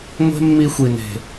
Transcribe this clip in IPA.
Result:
ŋʷ e̤˦ mː i˧ xʷ i˨ n e̤˨

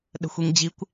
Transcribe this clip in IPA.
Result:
ɗ ə̤ xʷ i ŋ d͡ʑ i kʷ

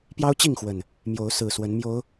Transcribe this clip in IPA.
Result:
p j ɑ˦ ʊ̯ t͡ɕ i˥˨ ŋ x w ə˨˩ n | m j o˨˦ ʊ̯ s ɹ̩˨˩ s w ə˨˦ n m j o˨˦ ʊ̯

